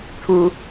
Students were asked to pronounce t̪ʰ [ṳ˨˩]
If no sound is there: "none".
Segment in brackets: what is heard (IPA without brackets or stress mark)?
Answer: u˧